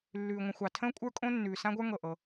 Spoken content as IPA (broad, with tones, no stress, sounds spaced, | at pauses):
lː ʉː˩ ŋʷ ə̃˩ xʷ ɑ˩ tʰ ə̃ː˥ kʷʼ ə˞˥ kʼ õ˥ nː ʉː˩ s ã˥ ɡʷ ə˞˥ ŋ ɤ˩ ʔ ɤ˩